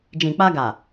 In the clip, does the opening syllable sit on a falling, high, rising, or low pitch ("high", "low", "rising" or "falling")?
low